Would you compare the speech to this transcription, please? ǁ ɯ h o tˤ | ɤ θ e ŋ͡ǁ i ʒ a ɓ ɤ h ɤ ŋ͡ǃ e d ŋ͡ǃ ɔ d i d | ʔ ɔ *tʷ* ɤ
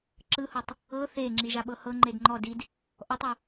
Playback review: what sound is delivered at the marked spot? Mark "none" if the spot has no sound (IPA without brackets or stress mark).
tˤ